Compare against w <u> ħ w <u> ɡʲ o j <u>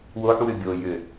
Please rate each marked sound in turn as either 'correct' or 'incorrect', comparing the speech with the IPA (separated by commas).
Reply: incorrect, incorrect, incorrect